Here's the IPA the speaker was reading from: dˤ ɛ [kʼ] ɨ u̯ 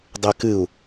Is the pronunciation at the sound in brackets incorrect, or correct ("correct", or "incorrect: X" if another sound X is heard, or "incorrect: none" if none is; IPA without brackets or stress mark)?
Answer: incorrect: k